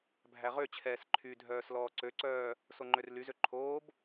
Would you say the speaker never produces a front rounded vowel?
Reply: no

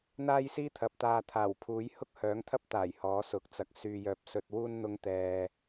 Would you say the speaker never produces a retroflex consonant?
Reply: yes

